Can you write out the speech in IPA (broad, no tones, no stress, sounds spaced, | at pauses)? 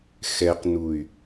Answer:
x ɛ q n u y̯